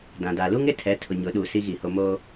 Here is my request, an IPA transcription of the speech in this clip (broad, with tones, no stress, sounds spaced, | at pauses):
d ã˨ d a˨ l u˦ ŋ ɪ˦ tʰ ɛ˨˦ tʰ ʊ˨ ɲ ʊ˨˦ ɗ uː˨ s i˦ ɣ i˨ h o˦ m o˦